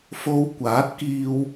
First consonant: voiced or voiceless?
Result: voiceless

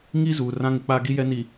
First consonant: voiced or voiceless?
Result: voiced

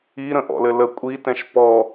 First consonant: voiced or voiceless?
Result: voiced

